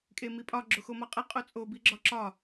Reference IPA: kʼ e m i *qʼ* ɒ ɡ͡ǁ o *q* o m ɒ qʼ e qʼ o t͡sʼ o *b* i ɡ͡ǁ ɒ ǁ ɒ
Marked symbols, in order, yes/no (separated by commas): no, no, yes